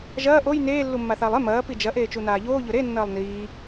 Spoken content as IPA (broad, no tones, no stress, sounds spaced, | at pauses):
ʒ ɐː ʔ o j n eː lː u mː a θ aː lˠ e m ɐː p i d͡ʒ ɐ ʔ eː t͡ʃ u n aː ʎ oː ʎ ɵ ɾ e nː ɐː lˠ n iː